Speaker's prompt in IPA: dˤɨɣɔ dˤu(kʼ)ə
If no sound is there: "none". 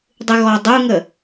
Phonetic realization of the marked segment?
ŋ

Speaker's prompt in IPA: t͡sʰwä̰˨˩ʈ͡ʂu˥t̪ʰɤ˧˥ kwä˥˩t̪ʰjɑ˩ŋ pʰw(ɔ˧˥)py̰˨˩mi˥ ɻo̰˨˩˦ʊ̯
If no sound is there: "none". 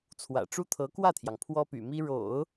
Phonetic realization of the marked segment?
ɔ˥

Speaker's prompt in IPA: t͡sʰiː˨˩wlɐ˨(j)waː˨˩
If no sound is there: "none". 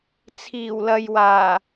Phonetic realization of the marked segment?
j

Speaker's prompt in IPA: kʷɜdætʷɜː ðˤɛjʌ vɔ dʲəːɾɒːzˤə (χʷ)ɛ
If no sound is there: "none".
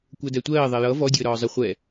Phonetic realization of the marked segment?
χʷ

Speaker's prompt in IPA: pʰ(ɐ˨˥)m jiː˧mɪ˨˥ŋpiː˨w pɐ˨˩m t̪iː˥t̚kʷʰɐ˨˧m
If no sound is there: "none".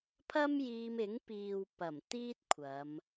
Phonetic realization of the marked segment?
ɐ˥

